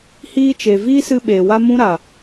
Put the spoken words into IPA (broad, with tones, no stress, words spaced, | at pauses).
hiː˧t͡ʃe˨ viː˦sɨ˧ ɓeː˨wa˦ mũ˦ɾa˨